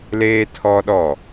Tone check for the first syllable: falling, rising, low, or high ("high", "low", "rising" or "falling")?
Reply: high